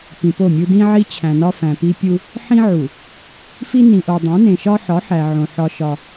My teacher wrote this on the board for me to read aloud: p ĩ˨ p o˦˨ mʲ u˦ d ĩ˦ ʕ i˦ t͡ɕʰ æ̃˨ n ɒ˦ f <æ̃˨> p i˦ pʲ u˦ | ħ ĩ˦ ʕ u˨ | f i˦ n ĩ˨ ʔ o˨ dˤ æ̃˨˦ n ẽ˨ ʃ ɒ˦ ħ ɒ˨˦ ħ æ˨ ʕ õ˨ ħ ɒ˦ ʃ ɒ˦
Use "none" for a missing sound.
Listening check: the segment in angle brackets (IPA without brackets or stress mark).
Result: æ̃˨